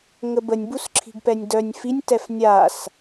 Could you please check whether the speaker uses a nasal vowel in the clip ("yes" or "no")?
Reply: no